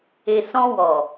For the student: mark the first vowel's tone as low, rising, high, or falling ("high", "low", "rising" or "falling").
low